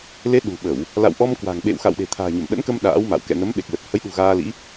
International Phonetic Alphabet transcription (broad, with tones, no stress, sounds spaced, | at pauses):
l e˨˦ ɗ ṳ˨˩ ɓ ə˧˩˨ w | l a̰˧˨ w ʔ ɔ˧ m k w a̤˨˩ ŋ ɓ ḛ˧˨ w x a̰˧˨ w ɗ e̤˨˩ t̪ʰ a̤ː˨˩ ɲ ə˧˩ m ɗ ə̰˧˥ n k ə˧ m ɗ a̰ː˧˥ w m a̰˧˨ w k ɛ̰˧˨ n ə˨˦ m ɓ e˨˩ k̚ l ə˨˩ t̚ h ə˨˦ j ɗ ṳ˨˩ ɣ aː˧ l ḭ˧˥